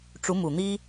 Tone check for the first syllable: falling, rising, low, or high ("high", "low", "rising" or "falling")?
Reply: rising